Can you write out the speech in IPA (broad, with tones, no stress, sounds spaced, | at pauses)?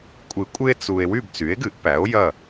kʷʼ ɨ˨˩˦ kʷʼ ɨ˦ e̯ t͡s u˨ e̯ w y˥˨ b t͡s y˩˥ e̯ ɡ ɨ˨˩˦ ʔ p æ˩˥ o̯ j ɐ˥˨